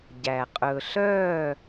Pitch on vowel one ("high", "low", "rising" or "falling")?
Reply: low